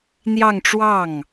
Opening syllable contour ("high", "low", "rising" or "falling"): falling